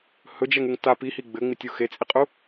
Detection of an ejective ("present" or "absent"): present